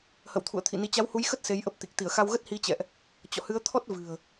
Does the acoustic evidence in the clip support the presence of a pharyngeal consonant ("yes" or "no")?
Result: no